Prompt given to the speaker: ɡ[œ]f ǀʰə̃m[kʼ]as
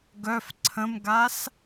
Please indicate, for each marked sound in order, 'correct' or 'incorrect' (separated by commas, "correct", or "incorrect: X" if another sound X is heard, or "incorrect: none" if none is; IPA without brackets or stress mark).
correct, incorrect: ɡ